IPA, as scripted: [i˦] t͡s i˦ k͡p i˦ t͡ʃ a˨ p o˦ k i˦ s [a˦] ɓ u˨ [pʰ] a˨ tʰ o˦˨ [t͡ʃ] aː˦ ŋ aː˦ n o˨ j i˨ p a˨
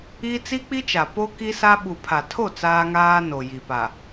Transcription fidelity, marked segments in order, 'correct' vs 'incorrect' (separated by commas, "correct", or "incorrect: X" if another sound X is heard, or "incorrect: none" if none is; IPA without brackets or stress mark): correct, correct, correct, incorrect: t͡s